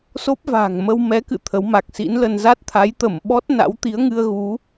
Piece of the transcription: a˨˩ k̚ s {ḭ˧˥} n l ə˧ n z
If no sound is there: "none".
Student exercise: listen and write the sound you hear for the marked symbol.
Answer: ḭ˧˥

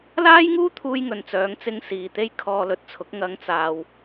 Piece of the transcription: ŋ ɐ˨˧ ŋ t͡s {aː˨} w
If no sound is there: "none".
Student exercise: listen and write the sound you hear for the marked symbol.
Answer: aː˨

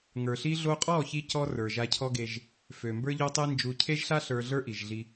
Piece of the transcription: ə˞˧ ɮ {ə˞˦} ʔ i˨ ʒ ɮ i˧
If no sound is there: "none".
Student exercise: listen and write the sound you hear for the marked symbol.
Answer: ə˞˦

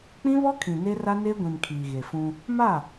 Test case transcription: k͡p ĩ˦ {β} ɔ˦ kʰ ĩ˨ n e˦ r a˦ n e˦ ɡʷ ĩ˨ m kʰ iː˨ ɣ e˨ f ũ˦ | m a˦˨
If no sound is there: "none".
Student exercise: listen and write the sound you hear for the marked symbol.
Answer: β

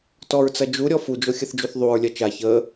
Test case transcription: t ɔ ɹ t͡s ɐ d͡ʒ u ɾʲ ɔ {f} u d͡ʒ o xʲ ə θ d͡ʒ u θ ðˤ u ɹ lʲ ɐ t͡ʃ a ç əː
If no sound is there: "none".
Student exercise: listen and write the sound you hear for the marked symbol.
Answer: f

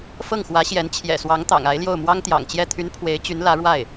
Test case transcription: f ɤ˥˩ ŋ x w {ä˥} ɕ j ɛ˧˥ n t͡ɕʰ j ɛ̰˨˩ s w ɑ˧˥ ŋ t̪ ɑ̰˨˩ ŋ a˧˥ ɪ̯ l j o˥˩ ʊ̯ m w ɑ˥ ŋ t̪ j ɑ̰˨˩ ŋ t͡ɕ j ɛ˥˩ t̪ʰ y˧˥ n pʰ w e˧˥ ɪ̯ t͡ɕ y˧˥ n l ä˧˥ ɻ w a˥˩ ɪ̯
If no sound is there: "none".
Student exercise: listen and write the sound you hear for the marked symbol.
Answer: ä˧˥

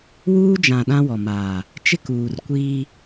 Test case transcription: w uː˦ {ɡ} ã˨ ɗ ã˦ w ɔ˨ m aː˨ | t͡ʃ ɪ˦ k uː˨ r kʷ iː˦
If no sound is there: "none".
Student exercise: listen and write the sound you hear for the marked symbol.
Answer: d͡ʒ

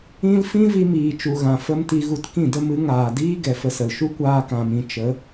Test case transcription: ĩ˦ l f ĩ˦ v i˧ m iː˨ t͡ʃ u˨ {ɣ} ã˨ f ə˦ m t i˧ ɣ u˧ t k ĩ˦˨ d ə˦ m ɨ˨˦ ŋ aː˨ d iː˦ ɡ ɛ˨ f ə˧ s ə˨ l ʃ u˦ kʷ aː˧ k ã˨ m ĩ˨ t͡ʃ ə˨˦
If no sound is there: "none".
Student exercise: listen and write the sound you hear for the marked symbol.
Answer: ɣ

